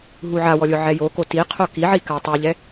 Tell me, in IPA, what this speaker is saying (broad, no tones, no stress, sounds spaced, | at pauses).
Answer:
ɦ u ʕ a w ɔ lʲ ʊ ʕ ɛ j o k o t i qʰ o k i ʕ i k a tˤ u ʎ ɛ